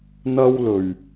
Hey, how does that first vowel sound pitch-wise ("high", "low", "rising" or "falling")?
high